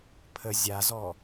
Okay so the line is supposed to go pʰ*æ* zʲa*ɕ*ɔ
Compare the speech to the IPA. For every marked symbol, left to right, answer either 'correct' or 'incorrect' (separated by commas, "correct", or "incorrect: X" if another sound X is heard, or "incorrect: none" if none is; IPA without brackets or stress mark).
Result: incorrect: ə, incorrect: z